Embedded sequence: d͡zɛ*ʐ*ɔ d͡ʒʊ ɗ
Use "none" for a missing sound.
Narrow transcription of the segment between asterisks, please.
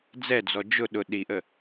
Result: d͡z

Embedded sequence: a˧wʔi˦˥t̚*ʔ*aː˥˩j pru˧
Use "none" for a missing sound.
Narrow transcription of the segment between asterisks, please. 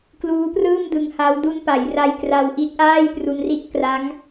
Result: ʔ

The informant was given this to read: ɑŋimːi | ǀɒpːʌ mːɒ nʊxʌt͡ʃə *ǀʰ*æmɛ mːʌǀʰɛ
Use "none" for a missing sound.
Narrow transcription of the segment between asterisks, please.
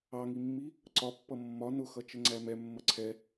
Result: ŋ͡ǀ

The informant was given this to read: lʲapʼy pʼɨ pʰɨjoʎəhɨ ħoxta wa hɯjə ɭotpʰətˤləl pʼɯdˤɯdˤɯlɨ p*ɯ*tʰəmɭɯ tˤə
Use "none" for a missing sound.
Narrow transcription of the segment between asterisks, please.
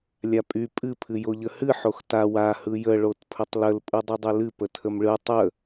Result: ə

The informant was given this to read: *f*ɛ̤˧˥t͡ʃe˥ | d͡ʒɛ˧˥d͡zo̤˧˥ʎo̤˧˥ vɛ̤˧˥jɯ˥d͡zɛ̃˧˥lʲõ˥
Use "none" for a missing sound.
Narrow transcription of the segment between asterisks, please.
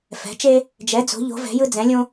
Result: f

